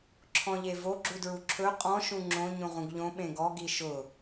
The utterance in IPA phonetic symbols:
ǁʰ ɔ̃ ʎ e v o ɡ͡ǁ u d ɹ u ǁʰ ɵ qʼ ɔ̃ ʃ ũ ŋ͡ǁ õ ɲ ũ ʁ ũ ɡ ʎ õ ɓ ẽ ɡ ɔ ɡ i ʃ ʊ

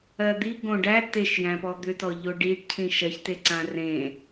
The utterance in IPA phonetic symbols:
ɜ d̪ i ɡ õ ɖ æ t e ʃ j æ̃ p ɔ d̪ ʏ t ɔ ʎ o ɖ i ɖ cʰ ĩ ʃ ɜ ç t e ǀ ã r ẽ

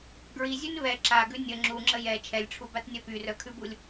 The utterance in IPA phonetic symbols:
ɡ ɹ i zʲ ʉ n β ɛ ǁ a ɡ ʉ nʲ ə ŋ͡ǁ u ŋ͡ǁ ə j ɛ t͡ʃʰ ɛ lʲ ʈ͡ʂʰ u b a t nʲ œ p y r œ kʰ ʉ b u lʲ

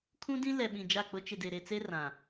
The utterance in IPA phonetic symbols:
kʰ ũ˦ d ĩ˦ l ɛ˨ ɓ ĩ˨ d͡ʒ a˦˨ k͡p ʊ˦ t͡ʃ ɪ˨ d e˨ ɾ e˨ t͡s e˦ r ã˨

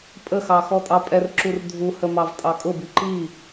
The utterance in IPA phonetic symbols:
pʼ ə x ɑ x ɔ tʼ ɑ pʼ ɛ r ǁ u r dʱ u h ə m ɑ v tʼ ɑ kʼ ʊ b i ǃ i

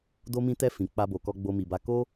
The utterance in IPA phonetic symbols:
d o˧ m ĩ˧ t ɛ˧ f ĩ˨ k͡p a˧ b o˨ k ɔ˧ ɡ͡b o˧ m i˨ b a˧ k o˦

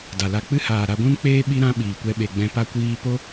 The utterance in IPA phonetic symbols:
d a˨ l a˧ k͡p ɨ˦ h aː˨ ɾ a˧ ɡʷ ũ˦ n k͡p eː˦ ɓ i˦ ɾ ã˦ ɓ iː˨ kʷ ɛ˧ ɓ e˨ ɡ͡b ɛ̃˧ p a˦ kʷ iː˦ p o˦

